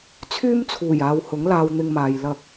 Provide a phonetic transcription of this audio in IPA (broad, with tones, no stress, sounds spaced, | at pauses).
t͡sʰ yː˥ m t͡sʰ uː˨˩ j aː˨ w h ʊ˨˥ ŋ l aː˧ w n̪ ɪ˧ ŋ m aː˨ j l ɐ˧ k̚